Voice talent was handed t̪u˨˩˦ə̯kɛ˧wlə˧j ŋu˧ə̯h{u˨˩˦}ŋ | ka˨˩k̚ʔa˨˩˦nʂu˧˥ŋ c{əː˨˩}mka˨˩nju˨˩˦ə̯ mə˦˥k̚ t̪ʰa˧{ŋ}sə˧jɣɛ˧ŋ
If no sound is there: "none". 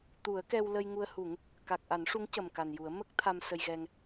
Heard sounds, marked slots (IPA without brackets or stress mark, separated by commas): u˨˩˦, ə˨˩, m